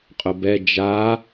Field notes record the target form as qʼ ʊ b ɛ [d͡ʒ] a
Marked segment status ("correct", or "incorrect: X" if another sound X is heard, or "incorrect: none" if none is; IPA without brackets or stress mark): correct